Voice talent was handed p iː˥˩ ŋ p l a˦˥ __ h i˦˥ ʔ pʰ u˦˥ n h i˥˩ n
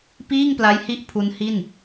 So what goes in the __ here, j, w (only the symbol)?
j